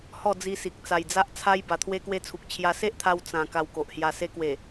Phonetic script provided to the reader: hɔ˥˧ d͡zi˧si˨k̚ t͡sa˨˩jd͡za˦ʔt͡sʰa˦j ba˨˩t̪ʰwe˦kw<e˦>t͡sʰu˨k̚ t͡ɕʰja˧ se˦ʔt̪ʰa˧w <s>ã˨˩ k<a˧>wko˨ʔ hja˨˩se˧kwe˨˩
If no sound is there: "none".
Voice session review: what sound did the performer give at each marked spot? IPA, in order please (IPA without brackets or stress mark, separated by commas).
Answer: e˦, t͡s, a˧